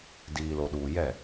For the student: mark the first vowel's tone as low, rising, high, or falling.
low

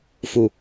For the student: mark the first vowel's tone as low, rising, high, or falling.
low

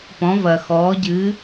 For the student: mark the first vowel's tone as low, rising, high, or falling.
rising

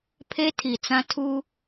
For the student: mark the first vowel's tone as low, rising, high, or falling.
high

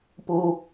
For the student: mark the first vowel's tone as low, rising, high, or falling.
high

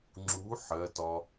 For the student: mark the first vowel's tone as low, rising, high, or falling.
rising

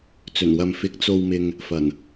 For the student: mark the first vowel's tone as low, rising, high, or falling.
low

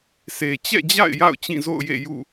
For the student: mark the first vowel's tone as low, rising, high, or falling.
low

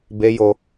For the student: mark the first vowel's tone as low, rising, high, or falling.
high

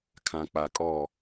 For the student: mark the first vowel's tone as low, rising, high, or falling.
low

